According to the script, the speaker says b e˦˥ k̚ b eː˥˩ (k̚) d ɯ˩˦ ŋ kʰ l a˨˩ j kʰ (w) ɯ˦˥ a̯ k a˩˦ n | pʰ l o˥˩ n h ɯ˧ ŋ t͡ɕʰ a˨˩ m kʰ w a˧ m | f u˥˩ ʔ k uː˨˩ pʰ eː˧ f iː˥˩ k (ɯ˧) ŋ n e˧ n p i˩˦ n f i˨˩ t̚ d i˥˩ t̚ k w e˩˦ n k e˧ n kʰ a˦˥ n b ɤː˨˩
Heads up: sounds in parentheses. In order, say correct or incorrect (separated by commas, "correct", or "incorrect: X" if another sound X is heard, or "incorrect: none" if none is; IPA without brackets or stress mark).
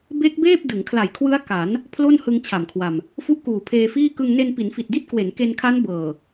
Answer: incorrect: p̚, correct, correct